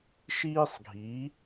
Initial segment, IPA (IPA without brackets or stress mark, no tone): ʃ